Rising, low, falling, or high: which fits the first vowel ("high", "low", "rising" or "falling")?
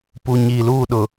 low